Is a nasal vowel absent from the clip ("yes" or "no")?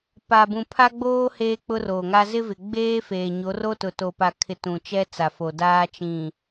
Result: no